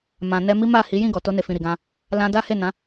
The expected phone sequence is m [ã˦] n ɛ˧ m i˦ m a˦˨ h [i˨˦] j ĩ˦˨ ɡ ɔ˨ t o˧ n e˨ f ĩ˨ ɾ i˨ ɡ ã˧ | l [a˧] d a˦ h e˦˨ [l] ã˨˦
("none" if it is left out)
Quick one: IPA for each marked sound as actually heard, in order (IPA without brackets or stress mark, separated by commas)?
ã˨, i˨˦, ã˧, n